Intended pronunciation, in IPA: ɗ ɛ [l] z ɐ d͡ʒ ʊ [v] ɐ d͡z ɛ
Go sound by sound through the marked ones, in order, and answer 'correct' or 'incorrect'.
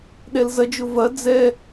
correct, correct

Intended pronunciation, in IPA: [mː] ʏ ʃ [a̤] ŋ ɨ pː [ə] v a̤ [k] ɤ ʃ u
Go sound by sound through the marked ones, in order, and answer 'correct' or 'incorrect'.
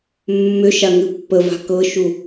correct, incorrect, correct, correct

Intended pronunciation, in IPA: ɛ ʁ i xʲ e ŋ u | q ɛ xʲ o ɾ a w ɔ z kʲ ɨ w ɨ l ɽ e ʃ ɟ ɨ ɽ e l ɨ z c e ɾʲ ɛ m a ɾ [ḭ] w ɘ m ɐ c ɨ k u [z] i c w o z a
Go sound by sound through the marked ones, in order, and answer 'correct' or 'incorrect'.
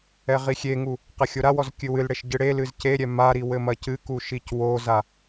incorrect, incorrect

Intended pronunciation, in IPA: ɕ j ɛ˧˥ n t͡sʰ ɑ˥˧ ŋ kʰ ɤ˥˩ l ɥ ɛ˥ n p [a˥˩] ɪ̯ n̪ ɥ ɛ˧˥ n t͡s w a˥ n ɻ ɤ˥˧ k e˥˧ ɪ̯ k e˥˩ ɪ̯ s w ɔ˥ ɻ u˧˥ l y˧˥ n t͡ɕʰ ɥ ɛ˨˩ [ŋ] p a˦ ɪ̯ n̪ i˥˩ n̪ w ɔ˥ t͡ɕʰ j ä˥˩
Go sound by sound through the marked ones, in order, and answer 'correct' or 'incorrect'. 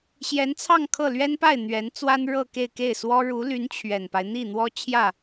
correct, incorrect

